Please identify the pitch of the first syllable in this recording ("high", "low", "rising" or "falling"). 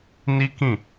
high